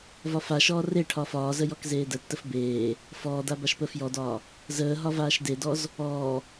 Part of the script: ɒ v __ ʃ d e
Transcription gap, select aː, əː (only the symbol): aː